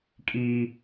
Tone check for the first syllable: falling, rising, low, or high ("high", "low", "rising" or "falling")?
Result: high